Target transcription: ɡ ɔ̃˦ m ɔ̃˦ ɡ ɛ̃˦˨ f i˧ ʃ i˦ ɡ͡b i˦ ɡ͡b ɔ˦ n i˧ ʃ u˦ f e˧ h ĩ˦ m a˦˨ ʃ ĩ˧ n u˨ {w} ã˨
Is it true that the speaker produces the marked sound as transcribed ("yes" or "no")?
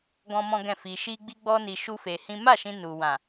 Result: yes